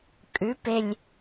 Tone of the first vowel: rising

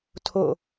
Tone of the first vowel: falling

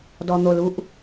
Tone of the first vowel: low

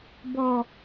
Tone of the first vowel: low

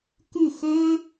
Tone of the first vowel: falling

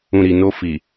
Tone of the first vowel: low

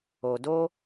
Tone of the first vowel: low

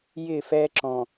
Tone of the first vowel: falling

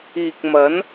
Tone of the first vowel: low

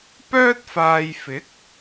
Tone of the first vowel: high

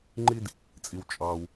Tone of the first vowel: high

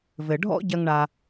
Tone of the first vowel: low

